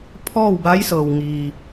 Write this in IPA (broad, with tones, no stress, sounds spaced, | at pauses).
pʰ ɔː˥˨ w b a˧˥ j s ɤː˩ w ŋ iː˩